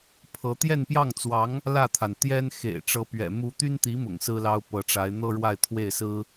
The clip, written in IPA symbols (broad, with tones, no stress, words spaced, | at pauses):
pʰɤ˧˥ t̪jɛ˥˧npjɑ˥˩ŋt͡swɑ˧˥ŋ | lä˥˩t̪ʰa˩n t̪jɛ˥nxḛ˨˩ɪ̯ʈ͡ʂɤ˧˥pɥɛ̰˨˩ mu˧˥t̪y˥nt̪i˧˥mʊ̰˨˩ŋ sɹ̩˥lɑ˥ʊ̯ pɤ˧˥ʈ͡ʂa˧˥ɪ̯ n̪ɤ˥ɻwa˥˧ɪ̯t̪ʰwe˥˩ɪ̯sɹ̩˥